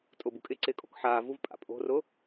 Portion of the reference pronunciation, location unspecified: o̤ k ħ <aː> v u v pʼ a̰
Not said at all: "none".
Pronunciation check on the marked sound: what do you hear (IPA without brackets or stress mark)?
aː